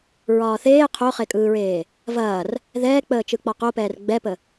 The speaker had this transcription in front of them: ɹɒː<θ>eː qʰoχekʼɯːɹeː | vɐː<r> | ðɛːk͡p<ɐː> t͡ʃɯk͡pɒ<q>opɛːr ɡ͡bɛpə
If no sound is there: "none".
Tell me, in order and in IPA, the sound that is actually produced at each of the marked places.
θ, r, əː, q

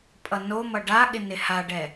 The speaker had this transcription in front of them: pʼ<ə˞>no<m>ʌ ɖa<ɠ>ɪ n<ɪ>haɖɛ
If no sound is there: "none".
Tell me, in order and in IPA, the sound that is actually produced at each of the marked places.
ʌ, m, ɠ, ɪ

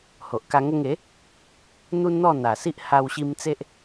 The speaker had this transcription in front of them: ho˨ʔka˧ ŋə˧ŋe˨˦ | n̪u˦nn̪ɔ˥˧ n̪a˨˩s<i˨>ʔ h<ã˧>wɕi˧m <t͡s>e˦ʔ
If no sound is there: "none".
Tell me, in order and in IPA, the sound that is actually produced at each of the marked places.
i˦, a˧, t͡s

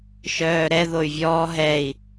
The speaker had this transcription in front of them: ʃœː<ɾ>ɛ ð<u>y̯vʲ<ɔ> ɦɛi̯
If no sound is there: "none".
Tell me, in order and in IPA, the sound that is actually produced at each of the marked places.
ɾ, o, ɔː

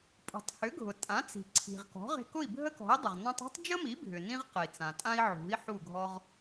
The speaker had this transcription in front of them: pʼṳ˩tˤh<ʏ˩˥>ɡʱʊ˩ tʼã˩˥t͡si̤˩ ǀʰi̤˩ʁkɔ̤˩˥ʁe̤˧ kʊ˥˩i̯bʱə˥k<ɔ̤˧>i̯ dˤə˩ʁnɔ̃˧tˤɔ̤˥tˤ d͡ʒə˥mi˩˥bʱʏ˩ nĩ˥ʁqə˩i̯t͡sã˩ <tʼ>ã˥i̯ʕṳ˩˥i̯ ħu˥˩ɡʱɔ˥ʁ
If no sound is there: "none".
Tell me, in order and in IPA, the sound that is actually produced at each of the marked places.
ʏ˩˥, ɔ̤˩˥, tʼ

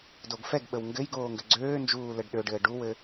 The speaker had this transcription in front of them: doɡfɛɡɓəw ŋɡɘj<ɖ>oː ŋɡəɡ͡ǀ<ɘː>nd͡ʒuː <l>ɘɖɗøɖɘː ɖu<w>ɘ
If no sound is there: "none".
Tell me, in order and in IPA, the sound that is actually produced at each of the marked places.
ɡ, øː, l, w

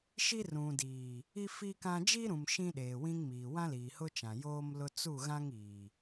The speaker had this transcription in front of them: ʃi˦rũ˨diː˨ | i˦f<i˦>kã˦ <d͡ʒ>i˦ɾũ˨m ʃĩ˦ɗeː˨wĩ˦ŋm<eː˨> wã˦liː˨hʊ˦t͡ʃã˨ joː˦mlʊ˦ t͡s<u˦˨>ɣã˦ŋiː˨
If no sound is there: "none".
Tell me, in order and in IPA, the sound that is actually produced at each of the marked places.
i˦, d͡ʒ, iː˨, u˦˨

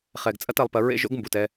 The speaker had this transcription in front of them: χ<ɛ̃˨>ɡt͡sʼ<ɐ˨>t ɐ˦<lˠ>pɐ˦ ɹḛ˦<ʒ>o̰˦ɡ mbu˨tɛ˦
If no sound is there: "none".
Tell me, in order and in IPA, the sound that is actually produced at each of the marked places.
ɛ˨, ɐ˦, lˠ, ʒ

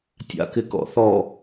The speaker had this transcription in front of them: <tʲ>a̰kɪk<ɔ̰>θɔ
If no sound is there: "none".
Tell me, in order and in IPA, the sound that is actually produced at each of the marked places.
tʲ, ɔ̰

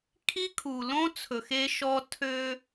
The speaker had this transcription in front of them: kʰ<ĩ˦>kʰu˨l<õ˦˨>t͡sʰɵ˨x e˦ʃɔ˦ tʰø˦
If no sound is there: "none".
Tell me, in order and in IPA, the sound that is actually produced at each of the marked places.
i˦, õ˦

